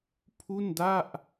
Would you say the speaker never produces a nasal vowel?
yes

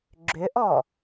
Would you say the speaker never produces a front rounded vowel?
no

